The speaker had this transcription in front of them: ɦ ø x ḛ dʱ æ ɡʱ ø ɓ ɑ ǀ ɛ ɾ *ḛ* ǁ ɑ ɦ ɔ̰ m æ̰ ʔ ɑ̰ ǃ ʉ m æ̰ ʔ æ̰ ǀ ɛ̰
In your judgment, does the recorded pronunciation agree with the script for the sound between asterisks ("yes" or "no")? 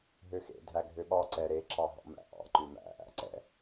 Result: no